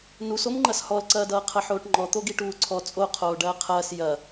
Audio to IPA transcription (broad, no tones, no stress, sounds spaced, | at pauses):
n u s o m ŋ͡ǃ ɐ s h ɔ l ǀ ɐː d ʌː qʰ ɐ ħ oː ʈ ŋ͡ǃ ɔ t̪ o ɡ i ʈ uː ǀʰ ɔ t͡sʼ o qʰ oː ɖ ɐː qʰ ɐː s j ɐ